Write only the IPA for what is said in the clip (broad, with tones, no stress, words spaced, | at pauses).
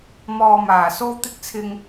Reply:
mɔː˧maː˨˩ so˥wt̪ɪ˥k̚t͡sʰɪ˧ŋ